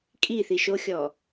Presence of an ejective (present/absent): present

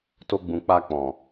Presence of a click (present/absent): absent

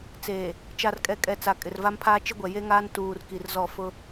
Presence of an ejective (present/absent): present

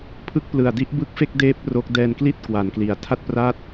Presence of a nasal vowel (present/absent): absent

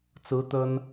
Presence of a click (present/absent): absent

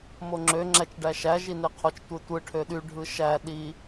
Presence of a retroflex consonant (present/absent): present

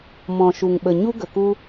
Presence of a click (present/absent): absent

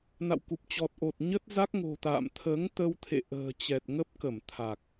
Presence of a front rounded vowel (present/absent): absent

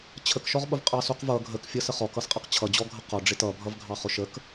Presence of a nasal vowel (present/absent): absent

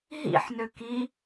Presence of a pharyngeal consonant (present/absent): present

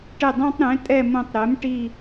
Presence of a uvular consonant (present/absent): absent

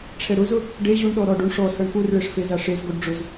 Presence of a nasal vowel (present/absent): absent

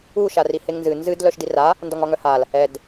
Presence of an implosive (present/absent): absent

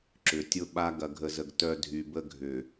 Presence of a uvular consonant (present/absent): absent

